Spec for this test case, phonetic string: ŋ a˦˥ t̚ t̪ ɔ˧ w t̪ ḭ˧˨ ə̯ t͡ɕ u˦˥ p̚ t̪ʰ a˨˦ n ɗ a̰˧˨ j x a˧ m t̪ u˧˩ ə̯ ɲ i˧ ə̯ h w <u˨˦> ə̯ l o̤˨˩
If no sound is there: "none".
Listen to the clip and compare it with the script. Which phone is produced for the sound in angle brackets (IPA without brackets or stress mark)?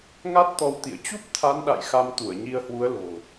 u˨˦